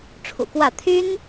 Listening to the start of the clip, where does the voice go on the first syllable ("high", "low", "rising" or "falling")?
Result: low